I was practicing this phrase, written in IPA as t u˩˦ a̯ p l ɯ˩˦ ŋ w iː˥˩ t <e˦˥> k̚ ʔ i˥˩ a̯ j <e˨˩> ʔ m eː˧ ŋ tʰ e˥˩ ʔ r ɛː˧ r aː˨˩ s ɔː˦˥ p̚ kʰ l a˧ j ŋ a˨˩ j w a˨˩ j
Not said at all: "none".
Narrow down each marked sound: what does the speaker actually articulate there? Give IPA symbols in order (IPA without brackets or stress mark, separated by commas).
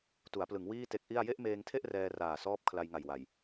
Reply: e˦˥, e˥˩